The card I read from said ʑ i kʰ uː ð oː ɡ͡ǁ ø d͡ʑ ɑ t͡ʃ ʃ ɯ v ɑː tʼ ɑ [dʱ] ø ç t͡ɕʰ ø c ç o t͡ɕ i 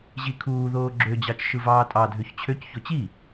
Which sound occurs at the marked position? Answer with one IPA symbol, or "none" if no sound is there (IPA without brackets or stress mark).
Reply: dʱ